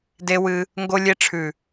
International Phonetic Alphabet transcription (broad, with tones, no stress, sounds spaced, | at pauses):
d e˦ w ɨ˧ | ŋ ɡ o˧ lʲ e˧ ʈ͡ʂʰ ʉ˨